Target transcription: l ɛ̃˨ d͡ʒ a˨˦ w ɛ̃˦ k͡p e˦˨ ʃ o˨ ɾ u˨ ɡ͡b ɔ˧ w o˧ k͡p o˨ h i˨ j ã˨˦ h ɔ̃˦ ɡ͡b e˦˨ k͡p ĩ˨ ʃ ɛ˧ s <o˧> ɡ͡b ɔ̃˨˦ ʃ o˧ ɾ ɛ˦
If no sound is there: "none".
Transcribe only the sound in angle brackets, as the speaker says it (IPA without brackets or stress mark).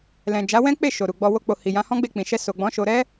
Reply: o˨